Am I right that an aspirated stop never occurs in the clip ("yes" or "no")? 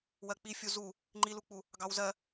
yes